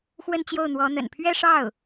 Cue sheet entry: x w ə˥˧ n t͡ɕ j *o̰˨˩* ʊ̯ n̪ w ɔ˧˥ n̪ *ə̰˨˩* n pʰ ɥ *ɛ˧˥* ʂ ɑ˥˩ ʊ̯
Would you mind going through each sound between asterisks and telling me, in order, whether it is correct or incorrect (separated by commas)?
incorrect, correct, incorrect